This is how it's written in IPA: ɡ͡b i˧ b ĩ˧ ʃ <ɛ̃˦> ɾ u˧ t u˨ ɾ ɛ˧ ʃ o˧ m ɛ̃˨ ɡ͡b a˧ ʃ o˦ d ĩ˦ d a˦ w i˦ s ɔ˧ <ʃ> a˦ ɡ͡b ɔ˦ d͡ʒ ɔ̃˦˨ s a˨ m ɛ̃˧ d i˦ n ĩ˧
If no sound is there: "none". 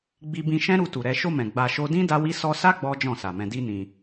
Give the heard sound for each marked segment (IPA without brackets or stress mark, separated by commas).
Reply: ɛ̃˦, s